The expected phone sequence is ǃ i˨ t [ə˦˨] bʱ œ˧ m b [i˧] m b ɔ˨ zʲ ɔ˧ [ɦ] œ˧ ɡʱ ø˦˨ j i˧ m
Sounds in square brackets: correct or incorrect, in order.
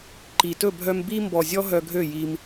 incorrect: ɵ˦˨, correct, correct

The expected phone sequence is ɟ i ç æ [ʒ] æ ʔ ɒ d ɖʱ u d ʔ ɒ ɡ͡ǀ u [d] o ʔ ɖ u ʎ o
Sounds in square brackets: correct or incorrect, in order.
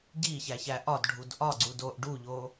incorrect: ç, correct

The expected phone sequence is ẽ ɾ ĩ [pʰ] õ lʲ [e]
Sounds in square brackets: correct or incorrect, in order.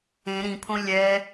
correct, incorrect: ɛ

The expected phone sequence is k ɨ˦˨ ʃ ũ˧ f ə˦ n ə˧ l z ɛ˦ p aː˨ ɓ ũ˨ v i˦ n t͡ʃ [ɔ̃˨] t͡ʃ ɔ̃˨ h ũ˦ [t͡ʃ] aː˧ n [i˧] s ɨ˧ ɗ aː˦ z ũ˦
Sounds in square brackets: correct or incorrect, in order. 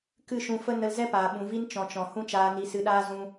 correct, correct, correct

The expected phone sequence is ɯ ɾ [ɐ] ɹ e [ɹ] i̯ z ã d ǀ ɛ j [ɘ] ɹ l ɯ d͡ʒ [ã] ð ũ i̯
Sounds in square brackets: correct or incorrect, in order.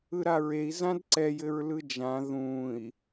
incorrect: a, incorrect: none, correct, correct

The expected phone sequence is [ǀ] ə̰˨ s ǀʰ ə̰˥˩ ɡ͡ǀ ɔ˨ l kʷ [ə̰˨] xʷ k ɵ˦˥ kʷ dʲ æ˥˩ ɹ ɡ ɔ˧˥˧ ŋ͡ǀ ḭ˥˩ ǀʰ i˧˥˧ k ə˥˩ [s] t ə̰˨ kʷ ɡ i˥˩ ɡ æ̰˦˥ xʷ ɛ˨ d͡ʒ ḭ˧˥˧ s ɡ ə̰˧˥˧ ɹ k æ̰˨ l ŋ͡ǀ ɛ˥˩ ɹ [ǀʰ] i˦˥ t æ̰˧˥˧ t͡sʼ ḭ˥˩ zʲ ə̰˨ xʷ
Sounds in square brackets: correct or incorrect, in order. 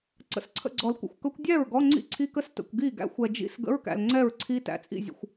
correct, correct, correct, correct

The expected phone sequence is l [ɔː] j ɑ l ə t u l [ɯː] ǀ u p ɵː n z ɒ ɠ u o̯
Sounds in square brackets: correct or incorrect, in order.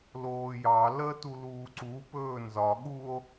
incorrect: oː, incorrect: uː

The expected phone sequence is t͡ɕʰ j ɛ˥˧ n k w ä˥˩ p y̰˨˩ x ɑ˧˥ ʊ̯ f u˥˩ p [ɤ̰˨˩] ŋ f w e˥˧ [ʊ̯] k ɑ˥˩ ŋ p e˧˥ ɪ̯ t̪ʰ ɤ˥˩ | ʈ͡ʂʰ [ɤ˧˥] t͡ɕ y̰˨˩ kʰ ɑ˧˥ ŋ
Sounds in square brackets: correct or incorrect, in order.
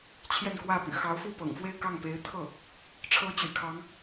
correct, incorrect: ɪ̯, correct

